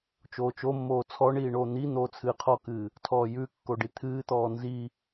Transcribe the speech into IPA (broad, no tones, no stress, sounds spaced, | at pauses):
t͡ʃ oː t͡ʃ o mː oː t͡sʰ ɔ ɳ iː ɳ oː n̪ i n̪ oː t͡sʰ ɨː qʰ ɔ k ɨː | tʰ ɔː j ʉ kː o ɖ i t̪ʰ ɨː t̪ ɔː n z i